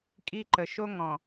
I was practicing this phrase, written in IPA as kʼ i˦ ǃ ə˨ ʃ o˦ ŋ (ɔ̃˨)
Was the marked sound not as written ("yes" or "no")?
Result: no